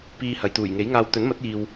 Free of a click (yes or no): yes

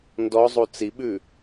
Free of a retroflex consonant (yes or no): yes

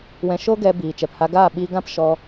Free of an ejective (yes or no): yes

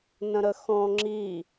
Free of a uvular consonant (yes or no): yes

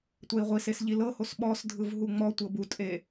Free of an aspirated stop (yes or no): yes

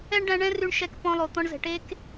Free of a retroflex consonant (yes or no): no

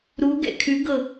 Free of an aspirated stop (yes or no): no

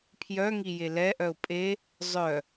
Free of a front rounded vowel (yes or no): no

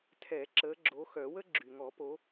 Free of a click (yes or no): no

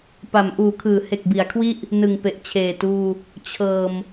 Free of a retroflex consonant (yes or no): yes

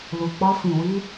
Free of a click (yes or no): yes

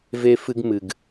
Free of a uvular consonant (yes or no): yes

